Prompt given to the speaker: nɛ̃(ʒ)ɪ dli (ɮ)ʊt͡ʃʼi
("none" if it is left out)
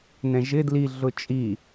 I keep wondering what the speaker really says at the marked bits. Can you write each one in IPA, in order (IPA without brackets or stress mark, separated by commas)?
ʒ, ɮ